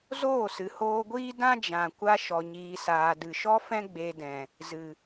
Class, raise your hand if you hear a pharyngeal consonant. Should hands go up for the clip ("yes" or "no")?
no